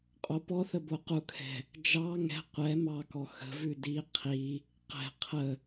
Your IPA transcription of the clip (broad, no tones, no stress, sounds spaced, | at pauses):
qʼ o p ɔ θ ə b o q u kʰ ɛ̤ | d͡ʒ ɑ ŋ ɛ̤ qʷ ɛ m ɑ k ɔ x ə̤ v ʉ d i qʰ i | q ɛ̤ qʰ ə